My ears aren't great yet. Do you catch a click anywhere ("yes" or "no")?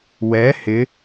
no